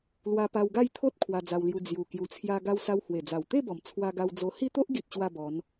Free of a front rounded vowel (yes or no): yes